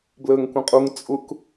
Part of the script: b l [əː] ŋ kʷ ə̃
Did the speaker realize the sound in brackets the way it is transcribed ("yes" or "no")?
yes